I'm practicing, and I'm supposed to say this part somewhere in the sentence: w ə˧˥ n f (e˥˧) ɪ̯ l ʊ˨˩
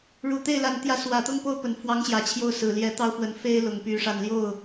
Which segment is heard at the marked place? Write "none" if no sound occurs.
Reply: e˥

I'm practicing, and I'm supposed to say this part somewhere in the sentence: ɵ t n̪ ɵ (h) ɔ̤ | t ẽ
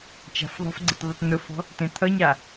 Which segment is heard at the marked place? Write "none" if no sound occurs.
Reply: f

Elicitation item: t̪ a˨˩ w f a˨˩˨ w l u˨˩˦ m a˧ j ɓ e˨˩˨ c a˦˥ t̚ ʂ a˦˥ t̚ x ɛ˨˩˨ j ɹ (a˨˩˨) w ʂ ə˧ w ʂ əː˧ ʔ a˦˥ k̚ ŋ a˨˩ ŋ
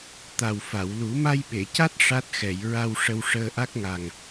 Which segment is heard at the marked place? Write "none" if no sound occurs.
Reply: a˧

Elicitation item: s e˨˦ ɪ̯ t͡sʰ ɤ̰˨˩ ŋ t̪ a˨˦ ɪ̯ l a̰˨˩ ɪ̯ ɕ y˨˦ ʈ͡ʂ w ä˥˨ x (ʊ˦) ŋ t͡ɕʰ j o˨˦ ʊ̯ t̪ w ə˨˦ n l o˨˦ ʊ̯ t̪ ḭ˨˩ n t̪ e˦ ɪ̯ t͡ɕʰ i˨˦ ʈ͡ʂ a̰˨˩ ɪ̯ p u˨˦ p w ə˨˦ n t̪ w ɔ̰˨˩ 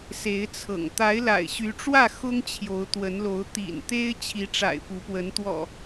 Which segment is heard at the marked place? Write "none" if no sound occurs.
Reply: ʊ˦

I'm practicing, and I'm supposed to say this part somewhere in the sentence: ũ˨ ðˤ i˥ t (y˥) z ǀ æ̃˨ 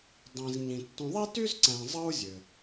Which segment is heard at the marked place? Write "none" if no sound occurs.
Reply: y˥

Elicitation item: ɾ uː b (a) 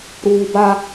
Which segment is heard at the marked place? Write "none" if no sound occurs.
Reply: a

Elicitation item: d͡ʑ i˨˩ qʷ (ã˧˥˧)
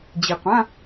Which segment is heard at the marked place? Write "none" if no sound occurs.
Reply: ã˧˥˧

